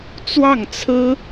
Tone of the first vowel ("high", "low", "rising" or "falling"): falling